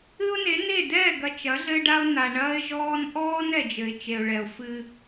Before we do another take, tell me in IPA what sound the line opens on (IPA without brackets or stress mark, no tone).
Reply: ɨ